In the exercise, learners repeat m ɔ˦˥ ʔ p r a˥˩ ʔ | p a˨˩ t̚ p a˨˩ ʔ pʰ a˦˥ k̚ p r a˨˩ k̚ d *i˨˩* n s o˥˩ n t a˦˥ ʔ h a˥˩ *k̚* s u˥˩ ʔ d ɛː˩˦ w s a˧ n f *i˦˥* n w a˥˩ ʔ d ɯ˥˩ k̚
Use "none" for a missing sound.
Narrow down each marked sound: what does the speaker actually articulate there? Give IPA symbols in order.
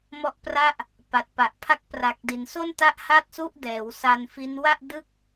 i˩˦, t̚, i˦˥

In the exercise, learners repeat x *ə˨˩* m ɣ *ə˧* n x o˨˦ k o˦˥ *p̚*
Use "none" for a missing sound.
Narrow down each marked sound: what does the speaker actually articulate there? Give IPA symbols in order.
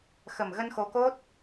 ə˨˩, ə˧, t̚

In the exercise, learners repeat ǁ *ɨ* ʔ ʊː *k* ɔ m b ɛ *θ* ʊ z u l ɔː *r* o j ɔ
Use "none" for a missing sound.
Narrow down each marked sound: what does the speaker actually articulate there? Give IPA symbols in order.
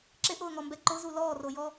ɪ, ŋ, ǃ, r

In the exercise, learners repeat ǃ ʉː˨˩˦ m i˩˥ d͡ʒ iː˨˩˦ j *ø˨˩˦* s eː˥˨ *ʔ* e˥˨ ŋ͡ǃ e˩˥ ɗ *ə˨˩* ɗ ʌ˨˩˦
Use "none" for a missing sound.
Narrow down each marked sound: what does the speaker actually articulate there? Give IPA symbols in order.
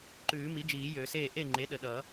ø˨˩˦, ʔ, ə˨˩

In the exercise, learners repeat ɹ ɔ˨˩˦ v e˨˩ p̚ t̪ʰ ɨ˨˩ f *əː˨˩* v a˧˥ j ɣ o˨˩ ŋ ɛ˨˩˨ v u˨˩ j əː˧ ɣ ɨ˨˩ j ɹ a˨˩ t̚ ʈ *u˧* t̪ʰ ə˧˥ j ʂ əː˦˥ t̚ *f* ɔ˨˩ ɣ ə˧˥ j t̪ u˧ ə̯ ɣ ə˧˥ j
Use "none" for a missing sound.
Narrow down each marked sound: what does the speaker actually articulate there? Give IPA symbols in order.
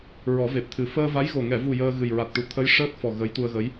əː˧, u˨˩, f

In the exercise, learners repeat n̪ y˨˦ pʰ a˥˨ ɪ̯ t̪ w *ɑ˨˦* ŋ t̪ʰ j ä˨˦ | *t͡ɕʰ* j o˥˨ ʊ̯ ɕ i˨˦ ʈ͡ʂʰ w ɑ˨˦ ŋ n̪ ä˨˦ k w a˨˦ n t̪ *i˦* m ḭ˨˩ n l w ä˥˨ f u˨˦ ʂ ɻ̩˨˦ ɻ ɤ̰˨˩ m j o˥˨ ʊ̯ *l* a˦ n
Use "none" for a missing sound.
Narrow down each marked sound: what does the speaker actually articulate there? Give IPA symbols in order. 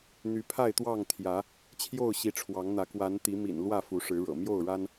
ɑ˥˨, t͡ɕʰ, i˨˦, ɻ

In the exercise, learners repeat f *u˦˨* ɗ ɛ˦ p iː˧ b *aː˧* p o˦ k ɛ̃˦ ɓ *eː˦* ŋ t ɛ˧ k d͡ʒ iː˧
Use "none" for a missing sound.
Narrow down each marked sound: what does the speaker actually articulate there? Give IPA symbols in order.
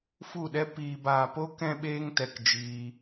u˦˨, aː˧, eː˦

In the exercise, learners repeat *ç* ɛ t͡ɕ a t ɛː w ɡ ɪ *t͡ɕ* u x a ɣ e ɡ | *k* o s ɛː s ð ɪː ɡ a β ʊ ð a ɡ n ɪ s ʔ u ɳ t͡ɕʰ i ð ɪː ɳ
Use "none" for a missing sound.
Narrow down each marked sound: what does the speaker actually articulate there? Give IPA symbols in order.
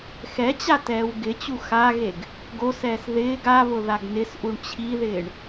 x, t͡ɕ, ɡ

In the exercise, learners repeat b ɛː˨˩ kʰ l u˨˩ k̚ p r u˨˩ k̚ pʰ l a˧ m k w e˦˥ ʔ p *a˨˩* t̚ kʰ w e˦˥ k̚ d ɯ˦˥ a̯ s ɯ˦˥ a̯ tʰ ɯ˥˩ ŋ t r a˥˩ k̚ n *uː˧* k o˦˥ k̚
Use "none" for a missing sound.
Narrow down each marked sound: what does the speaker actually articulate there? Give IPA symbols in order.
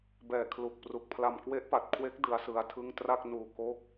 a˨˩, uː˧

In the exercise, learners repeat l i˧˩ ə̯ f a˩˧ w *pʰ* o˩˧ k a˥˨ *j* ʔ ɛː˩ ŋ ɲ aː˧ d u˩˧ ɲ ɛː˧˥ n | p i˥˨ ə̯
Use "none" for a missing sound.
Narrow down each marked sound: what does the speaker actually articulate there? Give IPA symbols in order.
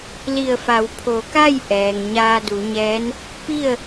pʰ, j

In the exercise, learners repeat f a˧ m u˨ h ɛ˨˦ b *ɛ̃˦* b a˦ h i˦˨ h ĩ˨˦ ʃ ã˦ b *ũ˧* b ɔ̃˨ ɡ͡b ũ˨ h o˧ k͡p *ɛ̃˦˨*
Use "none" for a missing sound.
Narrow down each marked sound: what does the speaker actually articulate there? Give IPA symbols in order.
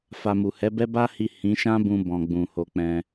ɛ˦, ũ˧, ɛ̃˧

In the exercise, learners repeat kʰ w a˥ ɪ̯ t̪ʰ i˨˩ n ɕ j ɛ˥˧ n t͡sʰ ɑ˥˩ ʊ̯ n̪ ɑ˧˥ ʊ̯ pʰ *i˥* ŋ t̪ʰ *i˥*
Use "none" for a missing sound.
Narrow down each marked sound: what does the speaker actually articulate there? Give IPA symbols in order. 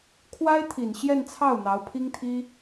i˥, i˥

